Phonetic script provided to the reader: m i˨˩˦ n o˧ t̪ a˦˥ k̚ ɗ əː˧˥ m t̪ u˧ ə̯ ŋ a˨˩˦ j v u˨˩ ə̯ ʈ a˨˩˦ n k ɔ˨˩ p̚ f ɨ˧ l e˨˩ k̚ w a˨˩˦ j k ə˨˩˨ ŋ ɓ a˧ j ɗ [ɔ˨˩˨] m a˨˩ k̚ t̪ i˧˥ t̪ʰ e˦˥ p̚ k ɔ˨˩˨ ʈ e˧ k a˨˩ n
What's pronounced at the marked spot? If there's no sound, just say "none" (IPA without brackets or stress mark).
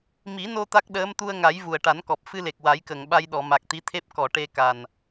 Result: ɔ˨˩˨